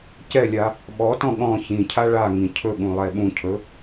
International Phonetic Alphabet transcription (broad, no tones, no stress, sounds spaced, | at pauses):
c ɛ lʲ a | ɓ ɔ t ɔ̃ ɠ ɔ̃ ç ĩ cʰ a ɭ a ŋ ĩ cʰ ɵ ɠ ũ lˠ ɛ ɓ ũ cʰ ɵ